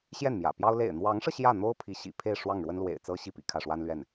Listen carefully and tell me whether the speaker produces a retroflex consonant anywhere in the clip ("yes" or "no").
yes